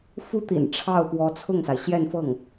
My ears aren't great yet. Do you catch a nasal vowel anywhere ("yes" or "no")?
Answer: no